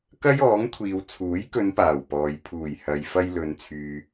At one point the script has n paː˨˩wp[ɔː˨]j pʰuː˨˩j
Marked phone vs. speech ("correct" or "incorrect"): correct